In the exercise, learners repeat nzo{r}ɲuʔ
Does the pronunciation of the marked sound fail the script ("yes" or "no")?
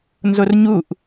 no